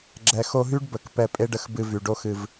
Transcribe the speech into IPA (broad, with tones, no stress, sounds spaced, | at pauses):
ɡ͡ǁ ɛ˨ x o˧ ɦ y˦ ɖ b ə˨ k p ɛ˧ pʼ e˦ ɖ ə˧ x b ɨ˧ v y˨ ɖ o˦ x ɨ˧ v